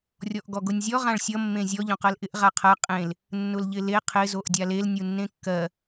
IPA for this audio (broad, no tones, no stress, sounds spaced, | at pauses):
rʲ ɔ ʔ ɡ ɔ ɡ ʊ nʲ zʲ ɔ ʁ ã ɭ sʲ ʌ mː ẽ zʲ ɔ ʎ õ q ɜ l ʔ ɪ ʔ ʁ a qʰ ɜ qʼ ẽ l | nː ʊ l ʎ ɪ l e qʰ ɪ z o ʔ dʲ a l e l nʲ u nː ẽ kː ɜ